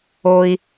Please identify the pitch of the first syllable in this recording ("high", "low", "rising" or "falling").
low